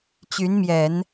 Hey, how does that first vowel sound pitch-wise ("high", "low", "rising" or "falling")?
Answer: rising